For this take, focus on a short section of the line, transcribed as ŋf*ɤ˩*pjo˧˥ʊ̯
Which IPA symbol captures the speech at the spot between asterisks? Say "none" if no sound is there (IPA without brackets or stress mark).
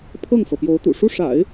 ɤ˩